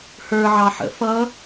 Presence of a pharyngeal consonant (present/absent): present